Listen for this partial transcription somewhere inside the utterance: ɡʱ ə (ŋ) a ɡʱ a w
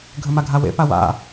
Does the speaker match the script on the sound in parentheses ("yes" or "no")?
no